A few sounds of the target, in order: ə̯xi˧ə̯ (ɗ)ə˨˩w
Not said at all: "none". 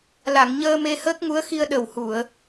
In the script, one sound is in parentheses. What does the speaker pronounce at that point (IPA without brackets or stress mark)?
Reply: ɗ